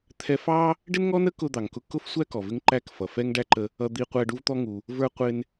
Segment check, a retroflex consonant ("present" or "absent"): present